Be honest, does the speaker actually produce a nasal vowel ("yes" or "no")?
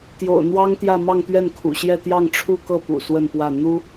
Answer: no